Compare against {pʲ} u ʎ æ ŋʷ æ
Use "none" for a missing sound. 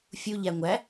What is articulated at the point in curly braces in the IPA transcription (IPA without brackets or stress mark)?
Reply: fʲ